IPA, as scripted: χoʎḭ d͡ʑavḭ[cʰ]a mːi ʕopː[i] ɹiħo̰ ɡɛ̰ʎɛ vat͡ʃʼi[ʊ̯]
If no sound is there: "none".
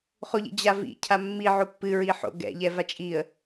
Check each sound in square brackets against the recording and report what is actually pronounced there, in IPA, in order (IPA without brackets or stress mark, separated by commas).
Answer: cʰ, ɨ, ə̯